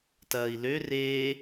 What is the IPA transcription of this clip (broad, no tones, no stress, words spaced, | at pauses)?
tɐːi̯lø reː